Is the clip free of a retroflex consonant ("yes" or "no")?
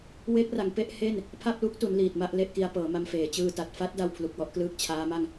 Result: yes